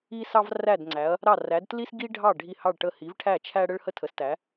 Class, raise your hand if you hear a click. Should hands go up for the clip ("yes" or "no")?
yes